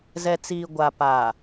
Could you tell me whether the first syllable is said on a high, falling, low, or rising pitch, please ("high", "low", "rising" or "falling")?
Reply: low